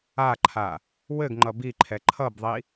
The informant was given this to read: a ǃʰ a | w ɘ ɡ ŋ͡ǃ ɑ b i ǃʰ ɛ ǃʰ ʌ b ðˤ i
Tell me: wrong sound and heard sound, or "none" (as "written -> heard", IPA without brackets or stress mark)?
ɑ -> ʌ